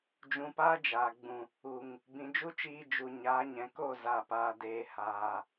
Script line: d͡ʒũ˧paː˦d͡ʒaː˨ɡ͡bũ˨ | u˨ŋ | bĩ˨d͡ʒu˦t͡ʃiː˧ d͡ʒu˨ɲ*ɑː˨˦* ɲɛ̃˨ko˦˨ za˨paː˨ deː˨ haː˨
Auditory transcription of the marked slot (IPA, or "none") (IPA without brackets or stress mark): aː˨˦